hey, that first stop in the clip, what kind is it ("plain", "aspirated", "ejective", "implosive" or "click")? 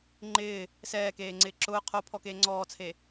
click